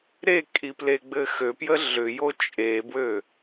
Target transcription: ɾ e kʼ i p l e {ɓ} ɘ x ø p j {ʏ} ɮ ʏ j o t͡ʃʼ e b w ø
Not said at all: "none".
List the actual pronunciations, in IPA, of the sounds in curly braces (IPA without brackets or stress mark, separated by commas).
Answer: ɡ͡b, ə